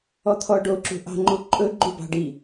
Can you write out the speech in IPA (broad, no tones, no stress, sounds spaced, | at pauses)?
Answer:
ɔ t̪ʰ ɔ ɖ o ǁ ṳ ʔ ɑ̤ ŋ͡ǃ u ǃʼ ɵ ɡ͡ǃ u b ɑ̤ ɖ i